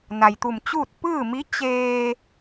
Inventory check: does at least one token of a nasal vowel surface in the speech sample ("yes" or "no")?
no